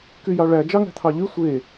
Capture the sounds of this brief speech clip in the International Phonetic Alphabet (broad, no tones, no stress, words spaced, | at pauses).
kyjɑɭæ d͡ʒɑŋæ̤t̪ʰɑʎy sʷe